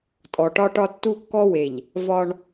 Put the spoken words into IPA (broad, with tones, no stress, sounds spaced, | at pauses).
tʼ ɔ˨ ʈ ɒ˦ ʈ ɒ˦ tː u˦ kː ɔ˦ w e˨ ʎ | v ɒ˦ ɳ